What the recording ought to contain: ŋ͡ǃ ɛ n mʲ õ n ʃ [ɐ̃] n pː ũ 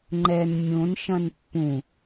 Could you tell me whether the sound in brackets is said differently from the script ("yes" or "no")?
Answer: no